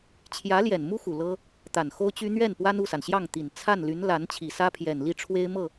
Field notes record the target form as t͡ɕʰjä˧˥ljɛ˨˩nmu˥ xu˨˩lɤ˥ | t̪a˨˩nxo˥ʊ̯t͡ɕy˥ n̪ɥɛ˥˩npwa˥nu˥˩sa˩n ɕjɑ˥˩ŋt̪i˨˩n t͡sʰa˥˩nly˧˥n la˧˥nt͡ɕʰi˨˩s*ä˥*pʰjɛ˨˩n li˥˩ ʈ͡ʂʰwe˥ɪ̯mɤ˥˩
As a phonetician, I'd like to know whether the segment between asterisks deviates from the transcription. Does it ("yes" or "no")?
no